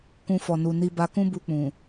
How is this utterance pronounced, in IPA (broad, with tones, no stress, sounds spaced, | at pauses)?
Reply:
k ũ˦ f ɔ˧ n u˧ n i˦ b a˧ k ũ˦ b u˧ k͡p ũ˨